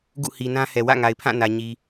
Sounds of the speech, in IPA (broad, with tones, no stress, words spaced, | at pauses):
ɡṵ˦˨hi˨nã˦hɛ˨ wä̰˦˨ŋa˨ɪ̯ pʰã˦˨nä˨ ɲi˨